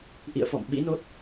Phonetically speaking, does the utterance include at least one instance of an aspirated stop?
no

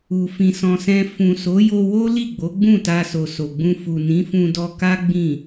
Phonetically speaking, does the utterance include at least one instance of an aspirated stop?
no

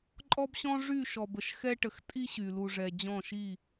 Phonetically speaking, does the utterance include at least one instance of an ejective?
yes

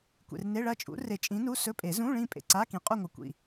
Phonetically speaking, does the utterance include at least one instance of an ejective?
yes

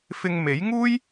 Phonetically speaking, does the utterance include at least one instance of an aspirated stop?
no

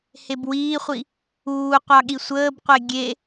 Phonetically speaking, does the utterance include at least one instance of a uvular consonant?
yes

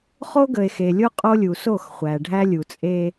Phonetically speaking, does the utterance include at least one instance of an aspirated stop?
no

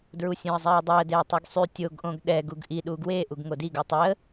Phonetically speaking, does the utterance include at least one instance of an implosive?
yes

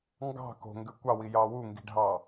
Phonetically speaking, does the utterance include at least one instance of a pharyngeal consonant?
no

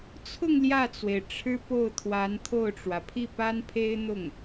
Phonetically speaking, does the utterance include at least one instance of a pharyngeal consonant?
no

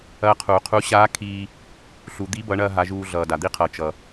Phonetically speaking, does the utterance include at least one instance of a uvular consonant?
yes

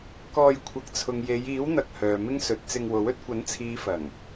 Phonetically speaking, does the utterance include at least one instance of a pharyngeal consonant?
no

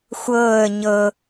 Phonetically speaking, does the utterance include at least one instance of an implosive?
no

